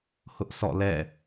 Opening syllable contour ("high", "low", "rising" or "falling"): high